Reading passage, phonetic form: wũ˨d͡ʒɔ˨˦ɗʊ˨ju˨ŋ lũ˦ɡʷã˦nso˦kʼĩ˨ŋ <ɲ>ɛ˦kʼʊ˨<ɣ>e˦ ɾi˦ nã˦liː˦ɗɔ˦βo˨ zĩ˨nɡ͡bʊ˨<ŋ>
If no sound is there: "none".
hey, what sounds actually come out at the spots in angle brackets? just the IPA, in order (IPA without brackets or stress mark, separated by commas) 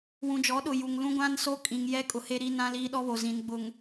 j, h, ŋ